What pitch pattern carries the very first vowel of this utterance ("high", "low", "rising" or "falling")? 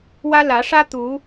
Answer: high